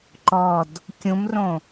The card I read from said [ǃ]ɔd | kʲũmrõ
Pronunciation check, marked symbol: correct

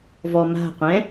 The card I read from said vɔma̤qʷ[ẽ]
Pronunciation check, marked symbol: incorrect: ɛ̃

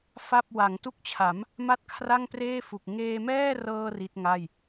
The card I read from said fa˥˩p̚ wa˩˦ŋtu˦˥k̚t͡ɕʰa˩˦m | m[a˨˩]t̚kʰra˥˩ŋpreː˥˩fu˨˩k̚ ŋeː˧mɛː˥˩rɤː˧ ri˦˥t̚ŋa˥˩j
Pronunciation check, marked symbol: incorrect: a˥˩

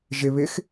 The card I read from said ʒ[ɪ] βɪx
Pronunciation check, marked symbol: correct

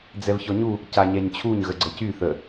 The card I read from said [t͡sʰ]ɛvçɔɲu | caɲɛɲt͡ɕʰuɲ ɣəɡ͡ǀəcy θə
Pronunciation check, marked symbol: incorrect: d͡z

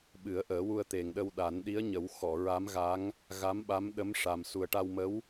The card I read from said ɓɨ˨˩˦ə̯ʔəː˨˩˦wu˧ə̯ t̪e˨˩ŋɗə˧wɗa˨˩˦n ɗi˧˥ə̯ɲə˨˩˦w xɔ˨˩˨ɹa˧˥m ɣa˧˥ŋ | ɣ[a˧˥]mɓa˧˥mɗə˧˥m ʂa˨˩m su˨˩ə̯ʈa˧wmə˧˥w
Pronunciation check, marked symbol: correct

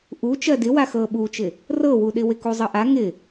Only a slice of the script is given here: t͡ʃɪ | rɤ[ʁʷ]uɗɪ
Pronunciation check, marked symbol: incorrect: w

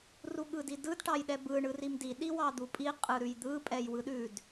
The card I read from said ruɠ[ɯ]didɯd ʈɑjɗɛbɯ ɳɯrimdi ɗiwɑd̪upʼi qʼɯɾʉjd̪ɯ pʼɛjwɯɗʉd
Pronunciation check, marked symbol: correct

